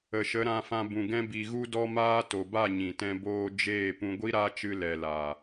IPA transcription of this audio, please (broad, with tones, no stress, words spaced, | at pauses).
ə˨ʃə˨˦ ɾã˧fã˧bũ˨ ɡɛ̃˦bi˧ ɣu˦dɔ˦maː˦ to˨ba˦˨ ɲĩ˨ tɛ̃˦boː˦ d͡ʒeː˦˨ pũ˧ɡʷi˦ɾa˦t͡ʃɨ˧ lɛ˨laː˨